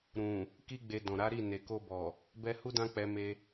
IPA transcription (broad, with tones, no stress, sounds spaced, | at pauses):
ɾ ũ˨ | k i˦ ɡ͡b e˧ d ɔ̃˨ ɾ a˨˦ ɾ i˦˨ n e˨ k o˧ b ɔ˨ | b ɛ˧ h u˦ d ã˦ k͡p ɛ˧ m e˧